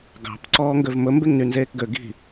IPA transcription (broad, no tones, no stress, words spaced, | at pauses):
ɡɑ̤p ǀɔːŋɡøvmɵ mbeŋnynzeːkɡø ɡi̤